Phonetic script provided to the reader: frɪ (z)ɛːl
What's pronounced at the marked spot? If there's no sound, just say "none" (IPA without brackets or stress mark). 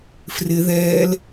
ð